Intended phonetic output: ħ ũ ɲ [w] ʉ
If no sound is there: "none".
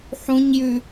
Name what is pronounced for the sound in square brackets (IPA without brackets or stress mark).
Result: j